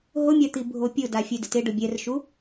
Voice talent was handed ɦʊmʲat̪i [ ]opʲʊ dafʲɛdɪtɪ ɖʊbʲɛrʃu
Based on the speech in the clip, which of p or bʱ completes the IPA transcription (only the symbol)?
bʱ